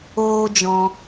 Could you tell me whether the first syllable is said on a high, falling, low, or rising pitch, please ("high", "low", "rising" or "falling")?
high